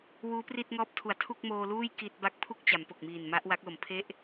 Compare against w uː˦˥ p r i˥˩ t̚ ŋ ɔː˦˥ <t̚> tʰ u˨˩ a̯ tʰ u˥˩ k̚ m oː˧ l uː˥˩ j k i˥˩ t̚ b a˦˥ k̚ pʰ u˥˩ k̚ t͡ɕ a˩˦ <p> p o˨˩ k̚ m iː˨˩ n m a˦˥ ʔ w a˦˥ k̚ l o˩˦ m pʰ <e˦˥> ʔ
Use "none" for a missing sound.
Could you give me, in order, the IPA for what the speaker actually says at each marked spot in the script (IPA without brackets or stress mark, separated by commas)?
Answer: p̚, m, e˥˩